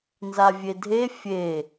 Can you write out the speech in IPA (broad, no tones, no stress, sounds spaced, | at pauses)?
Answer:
n z a vʲ e dʱ e fʲ e